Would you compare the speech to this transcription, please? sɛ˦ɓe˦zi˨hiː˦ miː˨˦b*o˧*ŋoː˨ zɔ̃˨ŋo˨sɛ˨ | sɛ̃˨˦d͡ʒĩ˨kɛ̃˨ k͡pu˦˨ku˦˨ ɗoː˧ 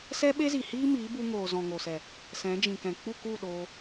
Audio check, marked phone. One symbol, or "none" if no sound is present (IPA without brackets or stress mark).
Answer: u˧